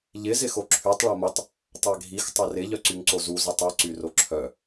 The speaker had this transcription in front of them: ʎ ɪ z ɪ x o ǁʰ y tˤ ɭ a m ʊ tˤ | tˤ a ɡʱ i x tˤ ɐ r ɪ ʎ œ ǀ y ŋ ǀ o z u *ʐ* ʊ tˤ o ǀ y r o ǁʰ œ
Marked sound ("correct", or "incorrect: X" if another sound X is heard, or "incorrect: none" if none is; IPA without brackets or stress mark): incorrect: z